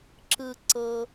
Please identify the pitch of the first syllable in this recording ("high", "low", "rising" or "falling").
low